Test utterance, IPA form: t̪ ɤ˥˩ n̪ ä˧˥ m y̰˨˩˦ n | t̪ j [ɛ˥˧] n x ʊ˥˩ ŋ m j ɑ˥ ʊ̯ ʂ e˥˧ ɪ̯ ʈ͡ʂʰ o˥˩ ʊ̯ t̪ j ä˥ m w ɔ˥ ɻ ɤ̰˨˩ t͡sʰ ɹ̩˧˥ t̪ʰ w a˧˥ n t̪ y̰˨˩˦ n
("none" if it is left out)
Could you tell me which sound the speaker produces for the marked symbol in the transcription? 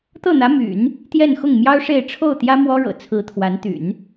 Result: ɛ˥˧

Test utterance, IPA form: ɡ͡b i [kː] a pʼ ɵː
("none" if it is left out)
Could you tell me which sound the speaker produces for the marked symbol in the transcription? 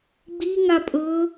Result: ŋ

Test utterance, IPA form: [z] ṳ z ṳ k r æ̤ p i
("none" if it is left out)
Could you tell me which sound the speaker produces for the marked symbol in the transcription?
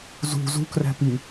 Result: z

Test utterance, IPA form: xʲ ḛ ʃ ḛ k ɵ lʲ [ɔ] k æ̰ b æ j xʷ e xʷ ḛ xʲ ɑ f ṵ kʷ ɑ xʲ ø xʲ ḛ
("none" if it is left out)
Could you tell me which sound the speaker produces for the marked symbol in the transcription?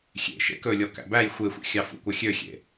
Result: ɔ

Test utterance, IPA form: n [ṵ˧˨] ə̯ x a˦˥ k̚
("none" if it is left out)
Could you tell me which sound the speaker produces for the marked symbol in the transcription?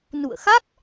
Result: ṵ˧˨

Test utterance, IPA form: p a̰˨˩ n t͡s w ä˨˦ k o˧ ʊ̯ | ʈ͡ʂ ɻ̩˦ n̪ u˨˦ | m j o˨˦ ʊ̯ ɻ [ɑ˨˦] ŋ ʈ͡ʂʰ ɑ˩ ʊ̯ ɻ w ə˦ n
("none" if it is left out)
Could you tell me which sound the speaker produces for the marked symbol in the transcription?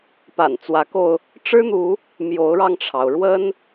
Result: ɑ˧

